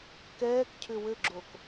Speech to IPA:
kɛːkcʰʏ wɘɡ͡ǁok

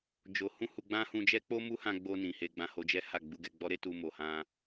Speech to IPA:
d͡ʒo˧ hũ˦hu˧ɡ͡bã˦hũ˧ d͡ʒɛ˦k͡po˦mu˦hã˧ ɡ͡bo˧nĩ˨ he˧ɡ͡bã˧ho˧d͡ʒɛ˦ ha˦˨ ɡ͡bu˧ɡɛ˧ɡ͡bɔ˦ɾe˦ tu˧ mo˨hã˧

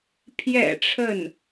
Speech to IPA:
pʰjɛ̰˨˩ ʈ͡ʂʰə˥˩n

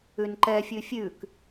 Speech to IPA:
ʉnǃɛfʲʉ fʲʉk

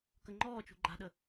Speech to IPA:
kəŋ͡ǃɔːt͡ʃṳ ɡ͡ǃa̤ɗə

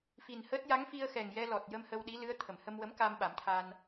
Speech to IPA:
fi˨˩nhəː˦˥t̚ ja˧˥ŋfi˧ə̯xɛ˨˩ŋjɛ˧ lɔ˨˩t̚jə˧m hə˧wɗi˧˥lɨ˧˥ə̯ t̪ʰə˨˩˨mhə˧mwə˧˥m ka˧m ɓa˨˩˦mt̪ʰa˧n

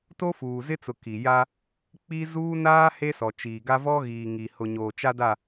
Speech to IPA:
to˦fuː˨zɪ˦t͡sʊ˨ ki˨ja˦ | k͡pi˦ zuː˦naː˦ he˦sɔ˨t͡ʃiː˨ɡa˦ vɔ˦ɣiː˨ŋi˨ hʊ˨ɲoː˨t͡ʃa˦da˦˨

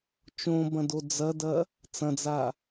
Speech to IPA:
t͡ʃõbɐ̃do d͡zɐdɐ | t͡sɐ̃d͡za

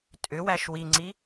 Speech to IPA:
tʼʏwæʃ wiŋ͡ǀi

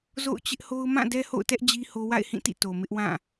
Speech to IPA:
zo̰˦˨ʊ̯t͡ɕɪ˦ʔho˦ʊ̯ mã˦˨ dɛ˦ho̰˦˨ʊ̯tɛ˦ʔ d͡ʑi˦ho˦ wa̰˦˨ɪ̯hĩ˦˨tḭ˦˨ to˨mɪ˦ʔwã˦˨

